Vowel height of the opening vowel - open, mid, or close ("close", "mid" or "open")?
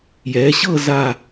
mid